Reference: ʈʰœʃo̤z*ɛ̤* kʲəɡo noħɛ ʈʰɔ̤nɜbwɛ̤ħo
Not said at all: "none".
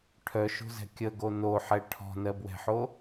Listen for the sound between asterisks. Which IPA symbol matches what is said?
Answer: ɛ̤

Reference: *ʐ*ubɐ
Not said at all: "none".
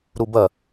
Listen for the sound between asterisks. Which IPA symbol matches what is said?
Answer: ɾ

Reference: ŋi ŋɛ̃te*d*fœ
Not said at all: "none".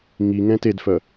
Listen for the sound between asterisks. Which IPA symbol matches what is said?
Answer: d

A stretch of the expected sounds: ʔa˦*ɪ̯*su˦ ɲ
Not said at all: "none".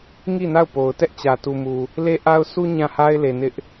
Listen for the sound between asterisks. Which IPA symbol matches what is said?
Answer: ʊ̯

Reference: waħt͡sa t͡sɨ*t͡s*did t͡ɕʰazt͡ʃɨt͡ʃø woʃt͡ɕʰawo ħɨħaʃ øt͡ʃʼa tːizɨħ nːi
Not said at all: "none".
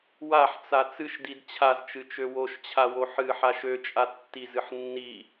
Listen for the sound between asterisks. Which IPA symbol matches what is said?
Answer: ʃ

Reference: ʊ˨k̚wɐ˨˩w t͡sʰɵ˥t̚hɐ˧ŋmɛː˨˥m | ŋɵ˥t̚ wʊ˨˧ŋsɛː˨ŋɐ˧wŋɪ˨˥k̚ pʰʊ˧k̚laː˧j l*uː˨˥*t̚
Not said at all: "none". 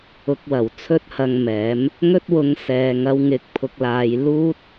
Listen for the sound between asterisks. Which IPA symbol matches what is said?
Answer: uː˥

